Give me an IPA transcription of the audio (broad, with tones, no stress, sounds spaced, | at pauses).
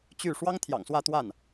t͡ɕ y˥˩ ʂ w ɑ˥ ŋ t̪ʰ j ɑ̰˨˩ ŋ s w ä˥˧ t̪ w a˥˩ n